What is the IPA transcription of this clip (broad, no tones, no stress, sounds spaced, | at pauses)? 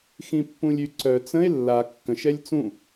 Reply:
x ĩ pː ũ lʲ y ǀ œ t͡s ə̃ e̯ lː a kː ə̃ ʃ ɛ lʲ t͡s ũ